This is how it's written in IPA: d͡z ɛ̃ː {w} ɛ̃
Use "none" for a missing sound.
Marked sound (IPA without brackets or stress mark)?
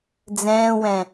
w